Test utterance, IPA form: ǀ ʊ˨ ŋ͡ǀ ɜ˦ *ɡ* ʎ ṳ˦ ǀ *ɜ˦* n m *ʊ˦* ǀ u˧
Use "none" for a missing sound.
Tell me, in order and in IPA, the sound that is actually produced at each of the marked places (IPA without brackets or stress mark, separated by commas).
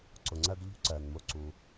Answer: ɡ, ɜ˨, ʊ˦